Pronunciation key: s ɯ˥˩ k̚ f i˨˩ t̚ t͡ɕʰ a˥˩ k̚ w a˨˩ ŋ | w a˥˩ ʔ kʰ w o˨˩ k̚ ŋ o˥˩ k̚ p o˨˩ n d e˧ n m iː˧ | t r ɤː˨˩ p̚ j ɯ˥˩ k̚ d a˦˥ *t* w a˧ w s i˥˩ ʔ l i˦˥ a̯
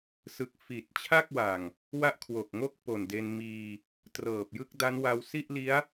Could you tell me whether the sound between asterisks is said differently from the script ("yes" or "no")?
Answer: yes